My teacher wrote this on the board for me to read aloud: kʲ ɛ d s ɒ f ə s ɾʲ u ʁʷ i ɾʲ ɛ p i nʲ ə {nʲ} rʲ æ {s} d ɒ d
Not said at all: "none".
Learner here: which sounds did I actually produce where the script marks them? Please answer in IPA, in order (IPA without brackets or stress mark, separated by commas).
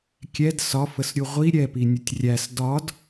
tʲ, s